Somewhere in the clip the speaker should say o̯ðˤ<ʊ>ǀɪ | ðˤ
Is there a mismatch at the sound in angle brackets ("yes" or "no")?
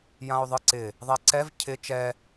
yes